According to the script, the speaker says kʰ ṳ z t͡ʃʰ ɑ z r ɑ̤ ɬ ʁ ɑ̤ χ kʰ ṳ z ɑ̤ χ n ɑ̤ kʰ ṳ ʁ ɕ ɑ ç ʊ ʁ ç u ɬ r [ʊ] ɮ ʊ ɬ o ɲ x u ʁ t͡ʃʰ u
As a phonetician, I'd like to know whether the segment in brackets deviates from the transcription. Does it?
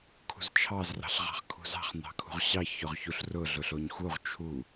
no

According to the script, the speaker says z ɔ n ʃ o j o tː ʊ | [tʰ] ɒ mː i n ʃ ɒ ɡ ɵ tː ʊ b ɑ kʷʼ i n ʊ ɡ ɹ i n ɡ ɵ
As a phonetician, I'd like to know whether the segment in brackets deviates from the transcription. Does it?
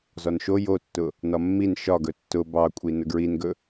yes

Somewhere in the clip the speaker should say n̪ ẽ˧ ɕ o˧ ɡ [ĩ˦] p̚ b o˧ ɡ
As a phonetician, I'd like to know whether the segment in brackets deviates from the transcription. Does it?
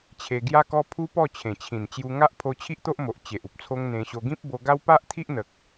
no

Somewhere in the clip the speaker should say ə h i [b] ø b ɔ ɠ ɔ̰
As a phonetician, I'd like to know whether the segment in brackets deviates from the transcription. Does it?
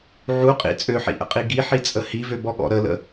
yes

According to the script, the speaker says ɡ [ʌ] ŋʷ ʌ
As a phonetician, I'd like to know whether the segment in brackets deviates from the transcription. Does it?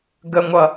yes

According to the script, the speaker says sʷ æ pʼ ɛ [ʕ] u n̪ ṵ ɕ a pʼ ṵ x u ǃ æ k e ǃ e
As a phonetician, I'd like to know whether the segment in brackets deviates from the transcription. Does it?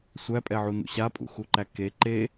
no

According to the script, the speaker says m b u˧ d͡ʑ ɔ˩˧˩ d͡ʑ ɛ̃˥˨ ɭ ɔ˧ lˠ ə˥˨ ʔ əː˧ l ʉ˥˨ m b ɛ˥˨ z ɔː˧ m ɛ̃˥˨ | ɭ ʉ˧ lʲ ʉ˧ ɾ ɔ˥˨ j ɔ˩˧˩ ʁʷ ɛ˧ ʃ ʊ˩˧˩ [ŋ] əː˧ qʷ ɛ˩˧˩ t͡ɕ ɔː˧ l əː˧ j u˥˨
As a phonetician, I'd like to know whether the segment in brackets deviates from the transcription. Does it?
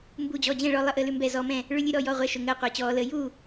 no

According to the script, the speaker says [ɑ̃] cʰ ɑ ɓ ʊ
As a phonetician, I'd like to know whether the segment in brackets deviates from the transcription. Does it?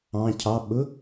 no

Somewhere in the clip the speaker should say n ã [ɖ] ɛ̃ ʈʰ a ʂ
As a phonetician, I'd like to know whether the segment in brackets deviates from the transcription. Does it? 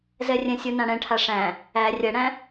yes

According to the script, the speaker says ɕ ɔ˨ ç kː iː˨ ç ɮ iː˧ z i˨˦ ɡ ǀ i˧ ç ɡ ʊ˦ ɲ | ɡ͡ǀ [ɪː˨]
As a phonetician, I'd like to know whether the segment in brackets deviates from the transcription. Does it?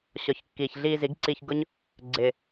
no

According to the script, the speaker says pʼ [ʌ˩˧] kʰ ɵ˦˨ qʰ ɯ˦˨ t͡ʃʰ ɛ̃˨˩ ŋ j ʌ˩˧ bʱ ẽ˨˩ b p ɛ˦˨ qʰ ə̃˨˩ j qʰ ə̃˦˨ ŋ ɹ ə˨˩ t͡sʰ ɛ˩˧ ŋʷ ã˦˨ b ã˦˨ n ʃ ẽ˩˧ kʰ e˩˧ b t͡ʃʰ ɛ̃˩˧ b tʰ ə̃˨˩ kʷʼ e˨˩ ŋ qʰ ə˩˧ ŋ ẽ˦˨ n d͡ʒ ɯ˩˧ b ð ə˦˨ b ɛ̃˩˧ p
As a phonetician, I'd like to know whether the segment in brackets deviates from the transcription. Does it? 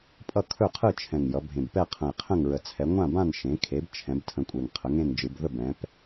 yes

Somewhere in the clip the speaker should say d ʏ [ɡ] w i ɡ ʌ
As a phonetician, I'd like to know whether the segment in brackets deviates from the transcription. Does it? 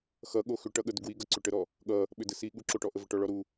no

